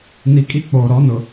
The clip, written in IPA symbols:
n i˦ kʼ i˦ k͡p oː˨ ɾ ɔ˨˦ n ʊ˨

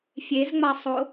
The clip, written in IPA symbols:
fʲ e z ŋ͡m a sˤ o

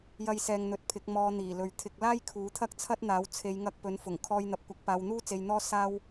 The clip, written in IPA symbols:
j ɐ˧ j s ɛː˨ ŋ n̪ ɵ˧ t̚ pʰ ɪ˨˥ k̚ m ɔː˧ n̪ iː˨˩ l ɵ˨˧ ɥ t̪ʰ ɪ˧ k̚ l aː˥ j kʰ uː˨˥ t̪ʰ ɐ˥ k̚ t͡sʰ ɐ˥ t̚ n̪ aː˨˥ w t͡sʰ e˨˧ j ŋ ɐ˧ k̚ p ɵ˨˥ n f ʊ˨˩ ŋ kʰ ɔː˧ j n̪ ɐ˨ p̚ kʷ ɐ˨˥ k̚ p aː˨˧ w n̪ uː˥ t͡s e˧ j n̪ ɔː˥ s aː˥ w

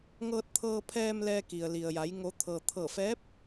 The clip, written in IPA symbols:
ŋ ɤː˧ t̚ t̪ʰ ɤː˧ pʰ ɛː˧ m l ɛː˧ k i˩ ə̯ l i˩ ə̯ j a˩˧ j ŋ o˩˧ t̪ʰ ɤː˩ t̪ʰ ɤː˧˩ f ɛː˧˥ p̚

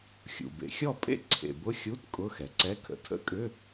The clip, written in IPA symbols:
xʲ ṵ˩ b ḛ˩ xʲ ɔ˥˨ pʼ ḛ˥˨ ǀʰ ḛ˩ b ʊ˧˥˧ xʲ u˧˥˧ t kʼ ʊ˧˥˧ x ɛ˩ ǀ ɛ˧˥˧ kʰ ə̰˩˧ tʰ ə̰˧˥˧ kʼ ʏ˧˥˧

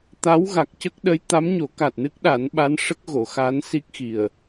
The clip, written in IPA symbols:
t̪ a˧˥ w ɣ a˨˩ k̚ c ə˦˥ k̚ ɗ ə˧˥ j t̪ a˧˥ m ɲ o˨˩˦ k a˨˩ t̚ n ɨ˦˥ k̚ ɗ a˨˩˦ n ɓ a˧˥ n ʂ ə˦˥ k̚ ɣ o˨˩˨ x a˧˥ n s i˦˥ k̚ x i˨˩ ə̯

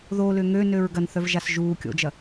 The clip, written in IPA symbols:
ð o l ʏ ŋ ø n ø ɹ ɡ ɐ n θ œ v ʒ a s ʒ uː kʲ o̰ d͡ʒ ɐ

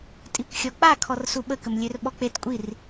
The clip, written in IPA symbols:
tʼ i kʷ xʲ ɔ k͡p a kʰ ɔ r s u ɓ ə k ə m lʲ ø r ɓ ɔ k͡p e t kʷʼ i r

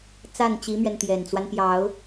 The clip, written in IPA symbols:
t͡s a˥˩ n t͡ɕ i˧˥ m ɥ ɛ˧ n t̪ j ɛ˨˩ n t͡s w a˦ n p j ɑ˨˩˦ ʊ̯

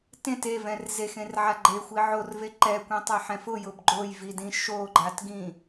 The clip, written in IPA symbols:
t ẽ t e v ɛ̃ r z e x ẽ r ʕ a ɡ͡ǃ e xʷ i ʕ o r v e ǃ ɛ kʷ ĩ tˤ ɛ ħ ɛ̃ f ʊ j ʊ b ɡ͡ǃ o j v i d ĩ ʃ o ɡ͡ǃ a t ɡ ĩ

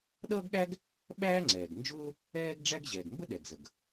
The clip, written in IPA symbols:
ɗ ʌː˥ ɡ ɠ æ˥ ɡ | ɓ æː˥ ŋ͡ǀ ɛː˩ ɡ n d͡ʒ ʊː˥ | ɛː˥ ɡ ɖ͡ʐ æ˥ ɡ ʑ ɛː˩ ɡ m b ə˥ ɗ ɛ˩ ɡ z ə˩ ɡ

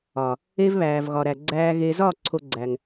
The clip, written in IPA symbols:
ɒ˨ | e˦ v β æː˨ v ɣ ɒ˨ ɾ æ˨ ɡ͡ǀ æː˦ ɣ e˨ z ɒ˦˨ ǀʰ o˦ ɡ͡ǀ æ˨ ŋ

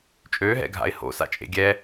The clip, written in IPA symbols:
t͡ʃʼ ø ɦ ɛ̰ ɡʱ a̰ ɪ̯ h o̰ s a̰ t͡ʃʼ ḛ ɡʲ ɛ

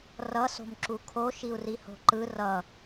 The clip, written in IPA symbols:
r ʌ s o̤ m ǁ u kʰ o ʃ i u̯ r i h o̤ ǃ ɯ r ʌ

